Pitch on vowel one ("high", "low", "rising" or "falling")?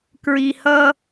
low